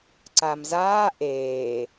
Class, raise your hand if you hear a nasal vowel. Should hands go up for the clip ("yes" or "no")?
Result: no